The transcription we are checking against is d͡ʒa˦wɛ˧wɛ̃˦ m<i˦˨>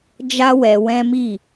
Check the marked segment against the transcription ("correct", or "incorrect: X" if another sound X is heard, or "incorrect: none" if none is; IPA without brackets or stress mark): correct